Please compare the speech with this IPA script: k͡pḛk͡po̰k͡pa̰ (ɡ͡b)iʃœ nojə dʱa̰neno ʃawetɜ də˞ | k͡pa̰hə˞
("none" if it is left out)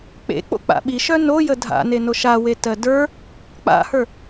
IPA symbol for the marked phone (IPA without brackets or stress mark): ɓ